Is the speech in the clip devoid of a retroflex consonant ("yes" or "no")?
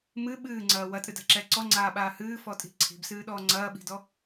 yes